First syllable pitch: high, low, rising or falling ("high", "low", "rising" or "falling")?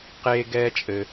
high